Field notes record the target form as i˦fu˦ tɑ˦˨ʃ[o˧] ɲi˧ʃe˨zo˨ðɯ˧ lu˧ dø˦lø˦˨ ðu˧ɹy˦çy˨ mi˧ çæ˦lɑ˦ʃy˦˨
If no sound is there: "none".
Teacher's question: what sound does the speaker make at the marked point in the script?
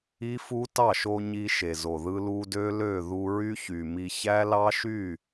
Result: o˧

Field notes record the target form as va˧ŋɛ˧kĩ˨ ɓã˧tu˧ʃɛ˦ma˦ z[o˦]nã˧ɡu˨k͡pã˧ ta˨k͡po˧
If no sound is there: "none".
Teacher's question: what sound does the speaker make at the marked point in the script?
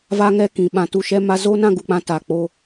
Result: o˦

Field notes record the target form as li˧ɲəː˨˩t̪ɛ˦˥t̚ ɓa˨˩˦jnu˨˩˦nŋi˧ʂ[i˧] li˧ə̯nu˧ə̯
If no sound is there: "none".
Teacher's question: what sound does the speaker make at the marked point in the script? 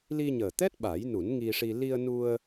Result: i˧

